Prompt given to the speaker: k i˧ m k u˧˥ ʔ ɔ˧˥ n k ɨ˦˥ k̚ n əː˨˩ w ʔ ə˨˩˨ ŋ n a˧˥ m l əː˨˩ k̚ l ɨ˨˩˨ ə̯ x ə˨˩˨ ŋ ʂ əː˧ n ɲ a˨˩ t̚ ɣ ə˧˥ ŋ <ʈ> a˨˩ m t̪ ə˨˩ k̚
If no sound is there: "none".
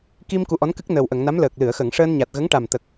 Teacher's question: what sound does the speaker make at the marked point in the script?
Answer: ʈ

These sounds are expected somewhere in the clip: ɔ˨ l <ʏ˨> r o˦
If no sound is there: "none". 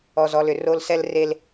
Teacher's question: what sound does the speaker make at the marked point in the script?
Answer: ʏ˨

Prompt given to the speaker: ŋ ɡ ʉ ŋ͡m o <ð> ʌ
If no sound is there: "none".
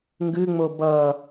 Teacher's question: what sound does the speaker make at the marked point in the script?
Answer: b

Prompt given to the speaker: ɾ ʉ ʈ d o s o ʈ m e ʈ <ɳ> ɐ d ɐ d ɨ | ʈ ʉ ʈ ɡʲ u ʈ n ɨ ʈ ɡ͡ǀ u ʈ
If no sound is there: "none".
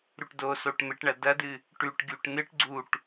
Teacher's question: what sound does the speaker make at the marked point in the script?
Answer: ɳ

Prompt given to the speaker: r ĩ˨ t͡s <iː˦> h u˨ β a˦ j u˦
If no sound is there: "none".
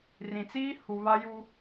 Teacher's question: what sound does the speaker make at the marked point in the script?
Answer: iː˦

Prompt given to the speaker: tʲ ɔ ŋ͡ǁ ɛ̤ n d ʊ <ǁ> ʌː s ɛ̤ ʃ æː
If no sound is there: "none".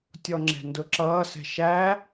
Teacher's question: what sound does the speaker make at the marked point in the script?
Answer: ǁ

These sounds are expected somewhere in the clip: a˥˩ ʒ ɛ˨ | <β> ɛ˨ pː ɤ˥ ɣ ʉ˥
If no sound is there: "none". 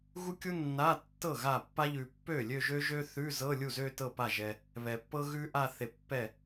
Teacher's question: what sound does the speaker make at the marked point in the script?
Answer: β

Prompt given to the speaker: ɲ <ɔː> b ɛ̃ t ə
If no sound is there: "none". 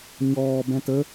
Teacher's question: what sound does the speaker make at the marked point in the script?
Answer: ɔː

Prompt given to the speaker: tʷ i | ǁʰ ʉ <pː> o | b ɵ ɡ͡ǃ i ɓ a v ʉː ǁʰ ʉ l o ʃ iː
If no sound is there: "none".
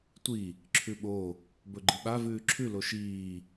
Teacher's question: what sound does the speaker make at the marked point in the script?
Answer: ɓ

